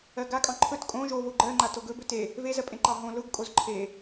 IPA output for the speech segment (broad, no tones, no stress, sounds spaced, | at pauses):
ɜ ɡ a kʼ ɑ̃ ǃʰ ɵ t kʼ õ ʒ o v o ɡ͡ǃ ɜ ŋ͡ǃ a t o ɡ ɵ b ɵ t e | v e z ɜ pʼ ẽ ǃ ɑ ɦ õ l ʊ ɡ kʼ o z ǃʰ e